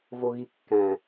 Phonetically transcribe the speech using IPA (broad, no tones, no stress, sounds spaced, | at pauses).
v o ɣ i kː æ̃